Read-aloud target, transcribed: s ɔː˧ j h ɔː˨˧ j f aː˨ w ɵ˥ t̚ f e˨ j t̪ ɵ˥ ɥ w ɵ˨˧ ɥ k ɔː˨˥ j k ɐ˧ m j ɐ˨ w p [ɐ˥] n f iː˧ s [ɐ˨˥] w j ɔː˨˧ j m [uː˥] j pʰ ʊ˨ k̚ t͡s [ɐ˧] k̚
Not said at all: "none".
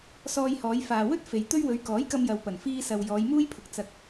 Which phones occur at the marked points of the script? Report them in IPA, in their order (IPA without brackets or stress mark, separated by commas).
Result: ɐ˨˩, ɐ˨, uː˥, ɐ˧